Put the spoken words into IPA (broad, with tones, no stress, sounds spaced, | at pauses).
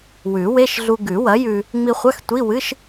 w ʉ˨˩˦ w e˧˥˧ ʃ ɮ u˧ ɡ ʉ˨˩˦ w ɐ˩˥ j ʉ˧ | ŋ͡m i˧ χʷ ɐ˧˥˧ x tʷ i˧˥˧ w ɨ˧˥˧ ʃ